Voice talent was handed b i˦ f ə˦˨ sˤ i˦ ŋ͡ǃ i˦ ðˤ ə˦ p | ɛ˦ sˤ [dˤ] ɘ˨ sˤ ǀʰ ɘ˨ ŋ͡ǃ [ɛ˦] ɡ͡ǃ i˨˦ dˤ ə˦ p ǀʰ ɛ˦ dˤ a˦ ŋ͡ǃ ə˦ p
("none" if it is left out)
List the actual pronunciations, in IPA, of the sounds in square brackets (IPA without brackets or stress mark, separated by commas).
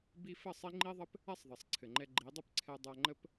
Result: ðˤ, ɛ˦